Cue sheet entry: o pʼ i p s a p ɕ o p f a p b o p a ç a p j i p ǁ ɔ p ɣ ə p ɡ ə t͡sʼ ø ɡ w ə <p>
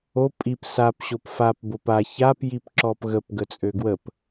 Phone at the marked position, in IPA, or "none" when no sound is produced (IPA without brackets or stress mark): p